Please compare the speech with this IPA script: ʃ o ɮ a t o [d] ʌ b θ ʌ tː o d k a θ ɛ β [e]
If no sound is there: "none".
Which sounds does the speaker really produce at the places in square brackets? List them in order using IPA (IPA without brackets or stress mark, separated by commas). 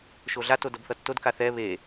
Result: d, e